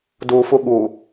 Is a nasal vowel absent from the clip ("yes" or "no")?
yes